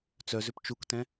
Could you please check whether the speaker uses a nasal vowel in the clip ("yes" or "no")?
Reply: yes